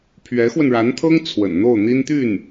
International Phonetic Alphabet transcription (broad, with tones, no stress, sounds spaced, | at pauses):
pʰ ɥ ɛ˧˥ x w ə˧ n ɻ a˧˥ n t̪ʰ ɤ˥ ŋ t͡sʰ w ə̰˨˩ n n̪ o˥˩ ʊ̯ n̪ i˥ n t̪ y˥˩ n